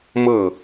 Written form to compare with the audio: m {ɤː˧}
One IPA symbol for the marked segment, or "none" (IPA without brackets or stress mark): ɤː˥˨